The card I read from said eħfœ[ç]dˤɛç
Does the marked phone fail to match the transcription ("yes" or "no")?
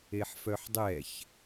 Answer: yes